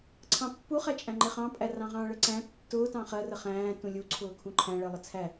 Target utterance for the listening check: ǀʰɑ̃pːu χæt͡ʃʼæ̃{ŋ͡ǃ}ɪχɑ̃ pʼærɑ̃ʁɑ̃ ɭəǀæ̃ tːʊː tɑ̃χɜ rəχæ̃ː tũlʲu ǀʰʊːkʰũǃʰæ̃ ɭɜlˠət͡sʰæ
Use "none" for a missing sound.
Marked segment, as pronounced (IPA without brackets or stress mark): ŋ͡ǃ